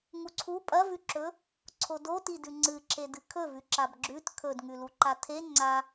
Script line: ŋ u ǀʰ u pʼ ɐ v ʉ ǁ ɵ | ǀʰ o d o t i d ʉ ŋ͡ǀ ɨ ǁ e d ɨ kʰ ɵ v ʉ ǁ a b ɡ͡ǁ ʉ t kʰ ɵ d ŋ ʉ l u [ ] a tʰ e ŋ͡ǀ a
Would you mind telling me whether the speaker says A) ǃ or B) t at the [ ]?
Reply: A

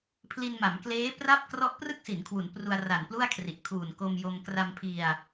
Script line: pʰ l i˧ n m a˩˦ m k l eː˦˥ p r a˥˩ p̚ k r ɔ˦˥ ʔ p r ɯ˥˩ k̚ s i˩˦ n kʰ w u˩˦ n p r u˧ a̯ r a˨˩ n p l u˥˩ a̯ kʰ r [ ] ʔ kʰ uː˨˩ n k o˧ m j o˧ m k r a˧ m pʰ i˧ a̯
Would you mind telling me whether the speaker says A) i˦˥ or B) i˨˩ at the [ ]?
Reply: B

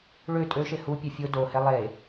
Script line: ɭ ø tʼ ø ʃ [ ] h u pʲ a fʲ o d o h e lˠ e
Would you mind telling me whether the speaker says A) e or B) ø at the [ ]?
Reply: A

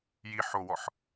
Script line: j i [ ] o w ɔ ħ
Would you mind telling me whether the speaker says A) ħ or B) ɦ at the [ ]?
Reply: A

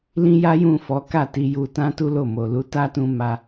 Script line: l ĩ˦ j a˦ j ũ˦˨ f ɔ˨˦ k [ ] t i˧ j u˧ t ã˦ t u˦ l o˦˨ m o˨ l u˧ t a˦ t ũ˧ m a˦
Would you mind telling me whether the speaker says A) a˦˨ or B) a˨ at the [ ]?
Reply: A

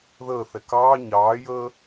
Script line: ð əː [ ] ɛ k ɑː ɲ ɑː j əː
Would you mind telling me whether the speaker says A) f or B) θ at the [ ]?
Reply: B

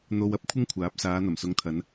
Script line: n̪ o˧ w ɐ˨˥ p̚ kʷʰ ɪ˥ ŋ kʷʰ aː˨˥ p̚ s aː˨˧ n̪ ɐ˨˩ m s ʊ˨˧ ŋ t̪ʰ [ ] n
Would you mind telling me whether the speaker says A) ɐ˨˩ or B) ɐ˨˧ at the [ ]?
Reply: B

